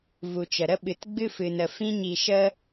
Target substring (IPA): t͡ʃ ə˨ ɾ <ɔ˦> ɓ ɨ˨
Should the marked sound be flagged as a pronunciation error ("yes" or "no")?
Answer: yes